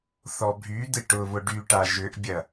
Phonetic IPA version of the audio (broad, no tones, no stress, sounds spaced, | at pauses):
θ ɔ bʱ y d̪ ɪ ʈ ʊ β ʊ ɖ y ʈ a ʒ ʏ ʔ bʲ ɐ